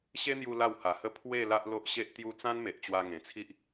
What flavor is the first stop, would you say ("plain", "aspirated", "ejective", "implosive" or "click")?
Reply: aspirated